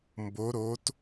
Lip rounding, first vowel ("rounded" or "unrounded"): rounded